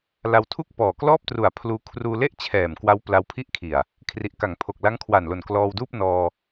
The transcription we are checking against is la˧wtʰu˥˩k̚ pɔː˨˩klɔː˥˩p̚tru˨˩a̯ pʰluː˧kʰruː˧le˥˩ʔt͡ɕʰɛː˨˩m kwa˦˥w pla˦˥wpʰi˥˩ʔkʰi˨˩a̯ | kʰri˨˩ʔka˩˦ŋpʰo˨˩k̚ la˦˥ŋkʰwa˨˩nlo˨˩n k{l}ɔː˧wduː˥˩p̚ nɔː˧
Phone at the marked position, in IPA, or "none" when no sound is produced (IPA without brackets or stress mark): l